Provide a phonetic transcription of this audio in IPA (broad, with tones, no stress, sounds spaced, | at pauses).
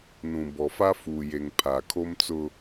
n ũ˨ b ɔ˨ f a˦ f uː˨ j e˨ ŋ pʰ a˨ kʰ o˦ m t͡s ʊ˦